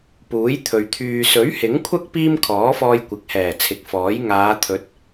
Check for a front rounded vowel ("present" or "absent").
present